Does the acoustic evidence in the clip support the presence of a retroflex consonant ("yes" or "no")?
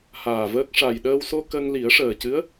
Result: yes